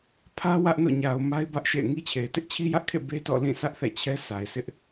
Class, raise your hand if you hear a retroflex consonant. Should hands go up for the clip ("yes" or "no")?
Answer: no